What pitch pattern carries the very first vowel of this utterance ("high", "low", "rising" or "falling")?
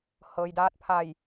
low